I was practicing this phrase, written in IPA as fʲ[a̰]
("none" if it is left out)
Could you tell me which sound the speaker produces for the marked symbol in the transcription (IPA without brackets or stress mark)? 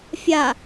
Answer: a